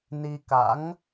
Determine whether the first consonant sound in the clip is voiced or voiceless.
voiced